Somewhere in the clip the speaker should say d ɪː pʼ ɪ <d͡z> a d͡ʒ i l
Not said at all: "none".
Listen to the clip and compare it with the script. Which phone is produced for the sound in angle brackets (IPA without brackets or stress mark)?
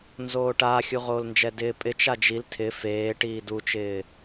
t͡ʃ